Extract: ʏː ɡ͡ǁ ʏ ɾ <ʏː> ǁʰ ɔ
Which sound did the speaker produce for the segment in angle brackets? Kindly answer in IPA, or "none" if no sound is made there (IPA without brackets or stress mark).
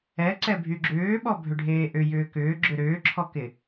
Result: ʏː